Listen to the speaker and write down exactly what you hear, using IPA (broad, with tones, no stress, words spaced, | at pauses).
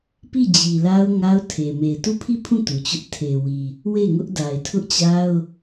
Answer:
pi˦˨d͡ʑi˨la˦ʊ̯ ŋa˦ʊ̯tʰe˨ me˨ɪ̯tu˦˨pʰi˦˨pʰũ˦˨ tu˨t͡ɕʊ˦ʔ tʰe˨wi˨ | we˦˨ŋʊ˦ʔ da˨ɪ̯tʰʊ˦ʔt͡ɕa˦ʊ̯